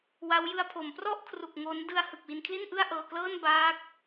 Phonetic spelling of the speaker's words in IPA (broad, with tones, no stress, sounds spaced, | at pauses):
w a˦˥ w j ɯ˧ a̯ pʰ o˩˦ m p r ɔ˥˩ ʔ kʰ r u˨˩ k̚ ŋ o˦˥ n d ɯ˧ a̯ h ɯ˨˩ k̚ w i˧ n kʰ l i˥˩ n ʔ ɯ˥˩ a̯ ʔ ɤː˧ k l ɤː˥˩ n b aː˦˥ k̚